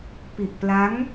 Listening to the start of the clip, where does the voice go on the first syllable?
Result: low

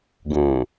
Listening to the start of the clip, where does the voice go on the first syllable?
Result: low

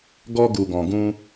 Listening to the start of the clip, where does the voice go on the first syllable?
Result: high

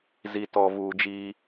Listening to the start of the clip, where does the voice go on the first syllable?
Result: low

